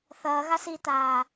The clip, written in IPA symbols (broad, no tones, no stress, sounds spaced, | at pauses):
θ ɐː ɣ a s iː t aː